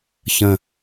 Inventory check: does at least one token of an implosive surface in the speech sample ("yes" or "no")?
no